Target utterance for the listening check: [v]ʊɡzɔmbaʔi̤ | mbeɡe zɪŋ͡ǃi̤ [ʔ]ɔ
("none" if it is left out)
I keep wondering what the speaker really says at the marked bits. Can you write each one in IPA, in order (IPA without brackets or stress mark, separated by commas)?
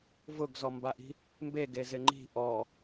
v, ʔ